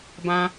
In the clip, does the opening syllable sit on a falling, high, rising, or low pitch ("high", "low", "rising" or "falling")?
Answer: high